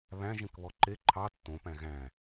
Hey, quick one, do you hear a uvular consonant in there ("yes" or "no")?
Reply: no